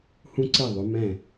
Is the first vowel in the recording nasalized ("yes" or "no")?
yes